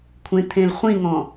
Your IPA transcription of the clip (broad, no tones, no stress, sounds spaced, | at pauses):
kʷʰ ẽ t̪ʰ ẽ l χʷ ĩ ŋ ɔ̃